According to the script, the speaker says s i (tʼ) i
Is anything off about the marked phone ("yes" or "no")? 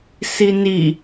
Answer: yes